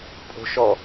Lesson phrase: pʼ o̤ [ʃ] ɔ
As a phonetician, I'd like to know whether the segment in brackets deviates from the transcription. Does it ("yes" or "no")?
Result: no